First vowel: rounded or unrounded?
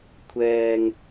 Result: unrounded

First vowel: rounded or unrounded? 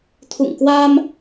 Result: rounded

